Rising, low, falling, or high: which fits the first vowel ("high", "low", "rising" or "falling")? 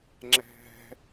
low